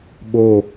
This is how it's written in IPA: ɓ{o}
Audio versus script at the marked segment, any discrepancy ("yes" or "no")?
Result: no